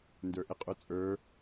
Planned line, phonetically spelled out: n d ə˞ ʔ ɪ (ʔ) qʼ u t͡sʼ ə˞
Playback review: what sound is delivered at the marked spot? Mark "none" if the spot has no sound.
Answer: none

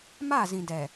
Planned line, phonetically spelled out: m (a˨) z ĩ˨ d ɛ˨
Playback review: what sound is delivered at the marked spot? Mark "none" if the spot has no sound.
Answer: a˦˨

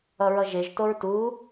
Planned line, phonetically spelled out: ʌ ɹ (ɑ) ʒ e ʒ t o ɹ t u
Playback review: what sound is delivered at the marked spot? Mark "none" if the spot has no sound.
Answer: ʌ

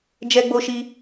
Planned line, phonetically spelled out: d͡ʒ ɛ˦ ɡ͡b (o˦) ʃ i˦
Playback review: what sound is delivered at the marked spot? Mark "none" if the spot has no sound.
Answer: o˦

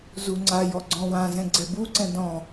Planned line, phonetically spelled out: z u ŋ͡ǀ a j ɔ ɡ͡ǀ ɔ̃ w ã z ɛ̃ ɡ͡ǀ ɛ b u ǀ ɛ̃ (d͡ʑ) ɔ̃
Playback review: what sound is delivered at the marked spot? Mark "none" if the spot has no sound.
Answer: d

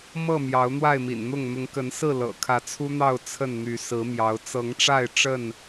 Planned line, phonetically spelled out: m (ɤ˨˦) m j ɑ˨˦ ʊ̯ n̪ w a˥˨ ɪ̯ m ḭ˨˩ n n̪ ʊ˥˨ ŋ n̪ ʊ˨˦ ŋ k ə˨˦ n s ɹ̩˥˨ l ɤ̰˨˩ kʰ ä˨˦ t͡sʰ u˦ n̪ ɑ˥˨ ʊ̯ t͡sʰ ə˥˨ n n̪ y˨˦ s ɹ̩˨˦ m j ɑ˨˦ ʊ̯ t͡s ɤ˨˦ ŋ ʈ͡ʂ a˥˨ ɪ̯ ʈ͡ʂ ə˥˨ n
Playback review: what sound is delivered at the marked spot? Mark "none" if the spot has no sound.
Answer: ɤ˥˨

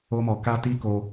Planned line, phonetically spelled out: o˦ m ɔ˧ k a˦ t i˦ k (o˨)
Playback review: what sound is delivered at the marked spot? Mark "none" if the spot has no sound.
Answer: o˧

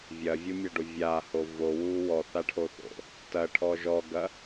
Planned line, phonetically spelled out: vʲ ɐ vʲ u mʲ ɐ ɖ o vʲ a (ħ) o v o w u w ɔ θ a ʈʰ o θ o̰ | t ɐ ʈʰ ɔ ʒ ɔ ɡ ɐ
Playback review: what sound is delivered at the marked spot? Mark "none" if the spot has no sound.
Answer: h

